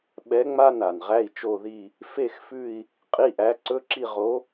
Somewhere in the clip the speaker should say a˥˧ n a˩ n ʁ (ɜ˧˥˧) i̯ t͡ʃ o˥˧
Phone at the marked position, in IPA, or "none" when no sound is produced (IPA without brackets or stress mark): æ˧˥˧